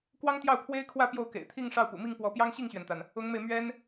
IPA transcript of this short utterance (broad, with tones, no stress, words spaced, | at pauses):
kwɑ˥ŋt̪jɑ˥˩ʊ̯pʰwe˥ɪ̯kʰwä˥˧ pjo˥˩ʊ̯kḛ˨˩ɪ̯t̪ʰi˥˧ŋ ʂɑ˥˩ʊ̯pṵ˨˩mi˥˩ŋpwɔ˧˥ pjɑ˥ŋɕi˥˩ŋɕɥɛ˩nt̪a˩n | ʊ˧˥ŋme˧ɪ̯ mɥɛ˥n